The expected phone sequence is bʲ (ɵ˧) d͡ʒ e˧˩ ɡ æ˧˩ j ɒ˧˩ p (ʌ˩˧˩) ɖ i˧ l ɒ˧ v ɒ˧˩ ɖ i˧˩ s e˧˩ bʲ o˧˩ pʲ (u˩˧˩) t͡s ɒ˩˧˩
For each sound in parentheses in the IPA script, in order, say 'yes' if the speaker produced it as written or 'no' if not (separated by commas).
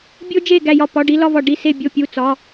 no, no, yes